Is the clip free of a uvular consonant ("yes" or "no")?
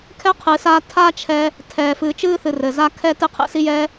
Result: no